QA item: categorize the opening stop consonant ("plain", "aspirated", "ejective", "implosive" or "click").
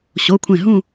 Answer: aspirated